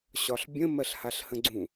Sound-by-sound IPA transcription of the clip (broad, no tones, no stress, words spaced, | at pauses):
ɕɒɬbʲə̃ mɜɬhaɬhə̃ɡ͡ǀũ